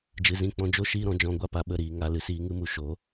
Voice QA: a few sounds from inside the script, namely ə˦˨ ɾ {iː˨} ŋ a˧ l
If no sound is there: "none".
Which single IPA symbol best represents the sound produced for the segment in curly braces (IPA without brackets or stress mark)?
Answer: iː˧